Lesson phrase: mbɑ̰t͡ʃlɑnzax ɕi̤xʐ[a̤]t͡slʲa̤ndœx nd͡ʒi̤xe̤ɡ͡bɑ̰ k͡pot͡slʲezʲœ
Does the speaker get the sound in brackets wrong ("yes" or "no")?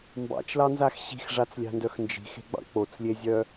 yes